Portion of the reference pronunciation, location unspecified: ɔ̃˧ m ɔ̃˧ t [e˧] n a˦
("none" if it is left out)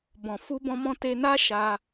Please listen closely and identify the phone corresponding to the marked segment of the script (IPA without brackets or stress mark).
e˧